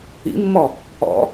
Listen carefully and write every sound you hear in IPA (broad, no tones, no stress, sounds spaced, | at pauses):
ḭ mː ɔ | ɔ̰